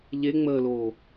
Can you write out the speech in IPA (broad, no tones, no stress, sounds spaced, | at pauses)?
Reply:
ʎ e ŋ͡m əː l oː